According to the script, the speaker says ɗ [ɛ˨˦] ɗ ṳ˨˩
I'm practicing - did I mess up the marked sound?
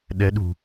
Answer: no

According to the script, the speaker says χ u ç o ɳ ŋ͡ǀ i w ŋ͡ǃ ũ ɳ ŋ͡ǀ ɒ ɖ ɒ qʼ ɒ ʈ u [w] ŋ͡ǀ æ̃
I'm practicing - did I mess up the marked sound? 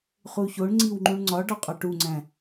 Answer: yes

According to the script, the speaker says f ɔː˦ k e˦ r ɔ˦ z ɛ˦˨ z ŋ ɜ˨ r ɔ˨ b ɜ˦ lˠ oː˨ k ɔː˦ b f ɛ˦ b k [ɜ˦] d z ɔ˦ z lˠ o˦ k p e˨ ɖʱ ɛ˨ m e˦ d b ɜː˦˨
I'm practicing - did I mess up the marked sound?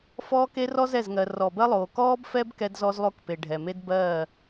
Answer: yes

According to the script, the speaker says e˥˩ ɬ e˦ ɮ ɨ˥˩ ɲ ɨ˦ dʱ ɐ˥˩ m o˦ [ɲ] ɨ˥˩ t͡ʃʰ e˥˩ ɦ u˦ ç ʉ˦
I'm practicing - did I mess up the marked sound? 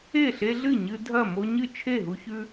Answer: no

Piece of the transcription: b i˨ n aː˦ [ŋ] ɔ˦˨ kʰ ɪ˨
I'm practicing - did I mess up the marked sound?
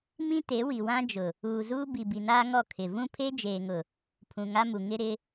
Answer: no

